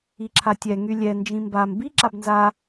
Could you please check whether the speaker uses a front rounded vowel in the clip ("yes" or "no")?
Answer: yes